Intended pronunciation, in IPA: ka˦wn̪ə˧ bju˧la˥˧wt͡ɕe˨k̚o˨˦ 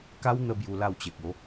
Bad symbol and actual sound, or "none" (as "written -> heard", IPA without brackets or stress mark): none